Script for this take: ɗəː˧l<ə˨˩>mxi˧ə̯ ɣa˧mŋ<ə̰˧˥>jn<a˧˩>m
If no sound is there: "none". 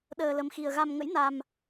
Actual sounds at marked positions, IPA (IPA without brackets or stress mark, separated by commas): ə˧, ə̰˧˥, a˧